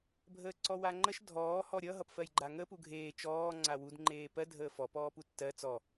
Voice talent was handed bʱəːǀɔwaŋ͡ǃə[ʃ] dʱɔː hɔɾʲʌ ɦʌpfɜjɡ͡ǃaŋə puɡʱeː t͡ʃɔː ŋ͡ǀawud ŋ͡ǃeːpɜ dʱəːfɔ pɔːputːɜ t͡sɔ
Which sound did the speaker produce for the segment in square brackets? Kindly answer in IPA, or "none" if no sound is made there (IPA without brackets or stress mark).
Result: ʃ